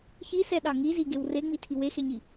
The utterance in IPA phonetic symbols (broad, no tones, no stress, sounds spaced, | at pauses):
ç i s ɛ ɗ ɑ ŋ i z i ɡ e w r e ŋ͡m i tʰ i w e x e ɲ i